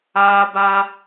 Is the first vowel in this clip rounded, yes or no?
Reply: no